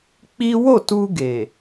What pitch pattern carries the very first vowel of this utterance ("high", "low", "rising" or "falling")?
high